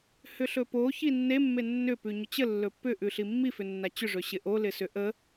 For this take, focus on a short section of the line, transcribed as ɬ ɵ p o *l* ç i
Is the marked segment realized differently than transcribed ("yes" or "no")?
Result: yes